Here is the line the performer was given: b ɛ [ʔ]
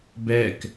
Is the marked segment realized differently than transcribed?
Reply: yes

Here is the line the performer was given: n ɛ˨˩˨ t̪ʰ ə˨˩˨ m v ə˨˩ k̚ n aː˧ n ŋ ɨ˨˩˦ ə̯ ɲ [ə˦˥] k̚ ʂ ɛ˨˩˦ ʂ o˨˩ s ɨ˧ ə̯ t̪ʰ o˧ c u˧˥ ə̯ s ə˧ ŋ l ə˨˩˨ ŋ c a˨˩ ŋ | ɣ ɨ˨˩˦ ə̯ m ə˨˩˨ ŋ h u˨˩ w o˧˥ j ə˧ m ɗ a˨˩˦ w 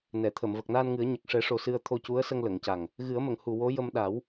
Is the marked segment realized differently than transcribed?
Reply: yes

